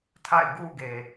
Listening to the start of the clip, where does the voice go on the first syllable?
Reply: falling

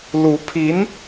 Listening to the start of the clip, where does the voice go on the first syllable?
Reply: rising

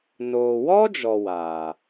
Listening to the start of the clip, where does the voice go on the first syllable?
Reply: low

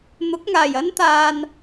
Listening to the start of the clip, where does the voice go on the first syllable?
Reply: rising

